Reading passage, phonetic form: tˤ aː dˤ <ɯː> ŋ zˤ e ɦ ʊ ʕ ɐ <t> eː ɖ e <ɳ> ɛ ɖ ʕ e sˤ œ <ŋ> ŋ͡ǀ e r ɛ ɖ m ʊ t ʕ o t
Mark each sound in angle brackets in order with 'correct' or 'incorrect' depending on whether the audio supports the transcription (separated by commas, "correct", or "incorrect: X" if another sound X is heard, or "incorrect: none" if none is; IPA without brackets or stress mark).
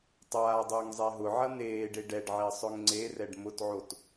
incorrect: ʊː, incorrect: n̪, incorrect: ɖ, correct